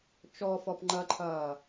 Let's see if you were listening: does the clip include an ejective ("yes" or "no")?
no